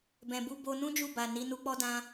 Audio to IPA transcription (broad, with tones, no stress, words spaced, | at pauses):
bɛ̃˨bu˧ bo˧nũ˦d͡ʒu˦˨ ba˨ ni˨˦nu˧k͡pɔ˦dã˦